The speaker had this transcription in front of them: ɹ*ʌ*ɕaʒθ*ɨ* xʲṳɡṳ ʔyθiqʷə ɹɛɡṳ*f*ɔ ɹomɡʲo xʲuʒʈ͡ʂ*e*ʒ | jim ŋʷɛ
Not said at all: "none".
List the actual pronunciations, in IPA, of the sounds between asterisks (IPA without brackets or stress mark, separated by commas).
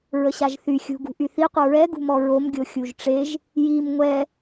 ə, y, m, e